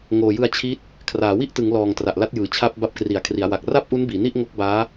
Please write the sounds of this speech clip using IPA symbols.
ŋ oː˨˩ j ɯ˧ a̯ t͡ɕʰ i˦˥ t̚ | kʰ r aː˩˦ w i˥˩ ʔ t ɯ˩˦ ŋ l ɔː˨˩ ŋ t r a˨˩ ʔ l a˦˥ t̚ j ɯː˨˩ t͡ɕʰ a˥˩ p̚ b a˦˥ p̚ k r i˩˦ a̯ kʰ r i˩˦ a̯ w a˨˩ k̚ r a˥˩ p̚ ʔ u˦˥ n b iː˩˦ n i˥˩ ʔ ŋ o˦˥ k̚ b aː˦˥

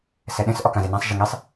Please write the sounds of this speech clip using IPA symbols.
s ɛ ɗ ẽ s ʔ ɔ k ã z e n ã sˤ ʒ ɘ ŋ e sˤ

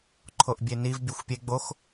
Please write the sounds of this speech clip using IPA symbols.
ǃʰ o ʔ bʲ e n i v bʲ u xʷ pʲ e ɡ͡b o x

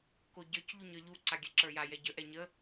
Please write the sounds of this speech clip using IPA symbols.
k o ɟ ə˞ c ʎ u ɲ ə˞ ʎ u ǀ a ɡʲ ɛ ǁ ə˞ j a j ɛ ɟ ə ʔ ɛ ɲ ə

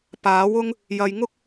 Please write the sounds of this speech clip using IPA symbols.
p aː˨˥ w ʊ˥ ŋ | j ɐ˨ j ŋ ʊ˥ k̚

